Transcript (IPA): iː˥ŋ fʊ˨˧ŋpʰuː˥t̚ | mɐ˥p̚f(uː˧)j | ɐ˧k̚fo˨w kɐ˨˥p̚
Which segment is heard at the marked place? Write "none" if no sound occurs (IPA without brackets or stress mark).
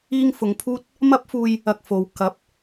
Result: uː˧